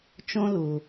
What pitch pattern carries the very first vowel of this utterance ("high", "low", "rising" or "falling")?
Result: high